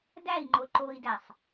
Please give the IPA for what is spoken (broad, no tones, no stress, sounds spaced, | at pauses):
d æ i̯ ŋ͡ǃ o ǃ o i̯ d æ sˤ